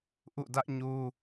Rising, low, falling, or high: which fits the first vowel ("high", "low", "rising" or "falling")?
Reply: falling